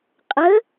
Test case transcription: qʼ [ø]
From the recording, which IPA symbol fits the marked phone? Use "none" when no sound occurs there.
ə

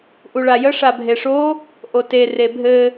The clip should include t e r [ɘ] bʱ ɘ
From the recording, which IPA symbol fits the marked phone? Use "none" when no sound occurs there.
e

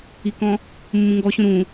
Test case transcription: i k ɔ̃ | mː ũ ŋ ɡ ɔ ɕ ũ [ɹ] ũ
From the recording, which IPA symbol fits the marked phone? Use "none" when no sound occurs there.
ɾ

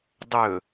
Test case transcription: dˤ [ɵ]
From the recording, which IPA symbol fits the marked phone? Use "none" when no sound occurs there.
ɵ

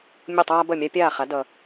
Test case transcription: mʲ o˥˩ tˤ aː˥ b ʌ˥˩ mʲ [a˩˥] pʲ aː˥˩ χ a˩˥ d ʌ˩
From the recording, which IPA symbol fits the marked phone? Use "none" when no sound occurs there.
a˥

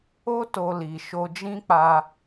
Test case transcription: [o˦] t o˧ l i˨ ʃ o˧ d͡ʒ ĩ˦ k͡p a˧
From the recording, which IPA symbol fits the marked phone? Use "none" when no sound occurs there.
o˦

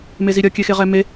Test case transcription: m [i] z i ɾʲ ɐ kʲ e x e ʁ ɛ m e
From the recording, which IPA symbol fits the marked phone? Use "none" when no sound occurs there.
e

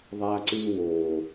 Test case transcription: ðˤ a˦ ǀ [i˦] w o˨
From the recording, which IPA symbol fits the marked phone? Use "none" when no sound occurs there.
ɨ˦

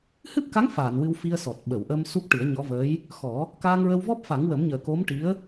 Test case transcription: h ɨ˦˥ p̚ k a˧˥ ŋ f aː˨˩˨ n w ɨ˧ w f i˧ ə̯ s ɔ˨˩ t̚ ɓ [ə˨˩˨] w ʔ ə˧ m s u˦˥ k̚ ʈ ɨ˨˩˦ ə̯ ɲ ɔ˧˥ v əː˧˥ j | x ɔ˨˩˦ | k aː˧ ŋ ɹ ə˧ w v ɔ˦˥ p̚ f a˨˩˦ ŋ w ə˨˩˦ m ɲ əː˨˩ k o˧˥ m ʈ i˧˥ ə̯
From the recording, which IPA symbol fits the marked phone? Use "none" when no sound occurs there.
ə˨˩˨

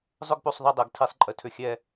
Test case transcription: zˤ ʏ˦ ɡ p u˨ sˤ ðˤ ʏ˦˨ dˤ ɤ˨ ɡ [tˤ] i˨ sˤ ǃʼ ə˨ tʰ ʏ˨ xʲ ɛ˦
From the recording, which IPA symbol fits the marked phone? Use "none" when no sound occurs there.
tʰ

